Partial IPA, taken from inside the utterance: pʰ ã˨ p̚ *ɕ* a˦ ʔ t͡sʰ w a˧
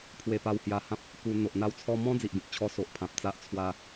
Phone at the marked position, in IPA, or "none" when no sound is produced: t͡s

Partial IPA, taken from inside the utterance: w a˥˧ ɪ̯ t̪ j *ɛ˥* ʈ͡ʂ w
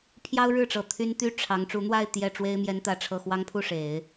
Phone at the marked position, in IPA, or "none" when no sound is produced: ɛ˥˩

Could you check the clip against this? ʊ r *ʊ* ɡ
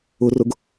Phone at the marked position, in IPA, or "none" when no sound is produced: ʊ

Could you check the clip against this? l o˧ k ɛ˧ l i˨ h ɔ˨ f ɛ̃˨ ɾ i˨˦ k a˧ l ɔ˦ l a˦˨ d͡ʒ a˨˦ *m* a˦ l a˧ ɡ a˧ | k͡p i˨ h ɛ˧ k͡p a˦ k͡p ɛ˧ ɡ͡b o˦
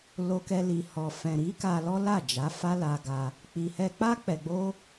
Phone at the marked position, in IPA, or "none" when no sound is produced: f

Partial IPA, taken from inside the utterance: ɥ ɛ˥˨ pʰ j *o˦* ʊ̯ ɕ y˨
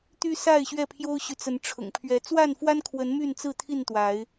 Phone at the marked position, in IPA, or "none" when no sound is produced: o˦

